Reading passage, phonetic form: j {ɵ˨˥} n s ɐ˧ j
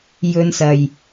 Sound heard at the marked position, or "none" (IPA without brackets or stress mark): ɵ˥